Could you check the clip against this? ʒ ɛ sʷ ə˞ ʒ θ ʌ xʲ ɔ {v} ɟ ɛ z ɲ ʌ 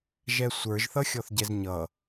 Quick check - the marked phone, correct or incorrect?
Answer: incorrect